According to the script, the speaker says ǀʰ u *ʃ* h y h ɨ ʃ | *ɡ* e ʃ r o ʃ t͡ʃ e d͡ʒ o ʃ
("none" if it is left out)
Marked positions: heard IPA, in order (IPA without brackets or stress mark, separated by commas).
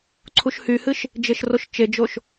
ʃ, d͡ʒ